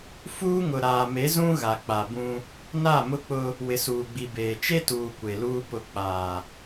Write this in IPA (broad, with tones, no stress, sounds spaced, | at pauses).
f uː˦ ŋ ʊ˨ ɾ aː˨ m e˨˦ z ũ˦ ɣ a˨ k͡p a˨ b ũ˦ | n a˦˨ m ʊ˦ k͡p ʊ˦ | w ɪ˨ s uː˨ ɡ͡b i˨ b eː˨ t͡ʃ e˦ t uː˨ kʷ e˨ l uː˦ p ʊ˨ k͡p aː˨